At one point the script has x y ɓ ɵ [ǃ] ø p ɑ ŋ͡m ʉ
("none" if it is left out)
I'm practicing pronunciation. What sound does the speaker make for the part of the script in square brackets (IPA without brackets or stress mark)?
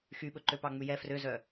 ǃ